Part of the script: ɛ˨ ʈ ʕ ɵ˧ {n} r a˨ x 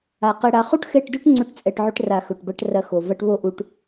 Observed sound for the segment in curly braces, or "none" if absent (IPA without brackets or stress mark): ʈ